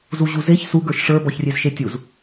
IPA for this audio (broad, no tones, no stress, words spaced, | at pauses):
zuʑuzeç su ɡə˞ʃʂə˞ bɔçrʲezʃetʲuz